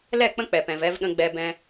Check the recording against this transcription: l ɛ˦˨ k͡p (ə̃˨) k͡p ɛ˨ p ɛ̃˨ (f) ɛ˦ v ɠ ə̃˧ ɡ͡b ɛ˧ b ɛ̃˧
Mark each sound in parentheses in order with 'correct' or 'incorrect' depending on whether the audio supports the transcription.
incorrect, incorrect

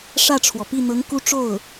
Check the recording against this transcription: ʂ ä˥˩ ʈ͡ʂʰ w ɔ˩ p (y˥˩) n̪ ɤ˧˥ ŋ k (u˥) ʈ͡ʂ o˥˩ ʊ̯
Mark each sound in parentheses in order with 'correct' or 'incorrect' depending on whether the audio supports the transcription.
incorrect, correct

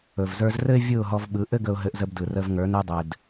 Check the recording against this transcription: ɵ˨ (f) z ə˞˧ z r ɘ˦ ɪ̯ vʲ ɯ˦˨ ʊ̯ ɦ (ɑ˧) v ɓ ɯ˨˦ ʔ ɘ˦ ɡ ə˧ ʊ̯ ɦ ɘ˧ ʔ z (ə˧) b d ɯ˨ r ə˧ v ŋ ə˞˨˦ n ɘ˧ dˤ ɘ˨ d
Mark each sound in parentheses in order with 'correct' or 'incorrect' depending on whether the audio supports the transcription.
incorrect, incorrect, correct

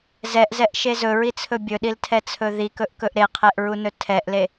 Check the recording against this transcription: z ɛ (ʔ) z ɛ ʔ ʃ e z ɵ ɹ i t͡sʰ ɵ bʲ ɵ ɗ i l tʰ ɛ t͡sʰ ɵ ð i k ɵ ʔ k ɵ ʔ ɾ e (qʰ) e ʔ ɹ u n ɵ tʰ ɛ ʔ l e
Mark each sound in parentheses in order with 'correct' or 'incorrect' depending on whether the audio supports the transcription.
correct, correct

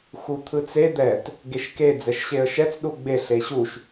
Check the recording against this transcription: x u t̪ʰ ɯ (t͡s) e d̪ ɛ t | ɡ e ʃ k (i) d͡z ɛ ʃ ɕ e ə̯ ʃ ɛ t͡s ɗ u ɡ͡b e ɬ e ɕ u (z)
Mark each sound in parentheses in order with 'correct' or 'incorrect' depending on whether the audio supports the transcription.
correct, incorrect, incorrect

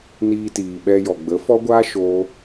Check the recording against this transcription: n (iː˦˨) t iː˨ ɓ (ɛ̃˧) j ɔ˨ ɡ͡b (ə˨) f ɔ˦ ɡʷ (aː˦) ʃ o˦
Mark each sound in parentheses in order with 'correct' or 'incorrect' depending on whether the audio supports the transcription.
incorrect, incorrect, incorrect, correct

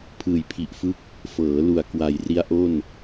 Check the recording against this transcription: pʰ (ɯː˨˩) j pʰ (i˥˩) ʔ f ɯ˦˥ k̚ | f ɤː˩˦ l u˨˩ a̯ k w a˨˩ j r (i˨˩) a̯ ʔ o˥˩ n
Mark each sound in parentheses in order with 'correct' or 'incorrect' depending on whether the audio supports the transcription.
correct, incorrect, incorrect

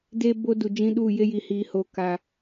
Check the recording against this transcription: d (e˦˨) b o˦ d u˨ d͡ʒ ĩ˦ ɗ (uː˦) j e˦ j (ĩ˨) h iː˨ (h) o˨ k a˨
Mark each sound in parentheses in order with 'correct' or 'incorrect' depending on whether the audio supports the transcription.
incorrect, incorrect, incorrect, correct

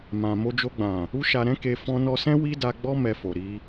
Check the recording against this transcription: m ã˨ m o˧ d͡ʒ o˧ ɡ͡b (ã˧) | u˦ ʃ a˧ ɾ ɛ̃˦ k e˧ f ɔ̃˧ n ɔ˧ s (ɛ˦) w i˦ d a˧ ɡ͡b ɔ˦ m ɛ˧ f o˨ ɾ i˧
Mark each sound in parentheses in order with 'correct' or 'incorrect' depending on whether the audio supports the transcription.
incorrect, incorrect

